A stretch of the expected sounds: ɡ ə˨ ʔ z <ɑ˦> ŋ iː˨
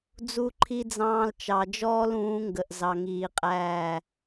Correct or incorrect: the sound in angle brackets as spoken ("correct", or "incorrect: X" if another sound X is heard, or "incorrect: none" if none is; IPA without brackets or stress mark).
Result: incorrect: ɑ˨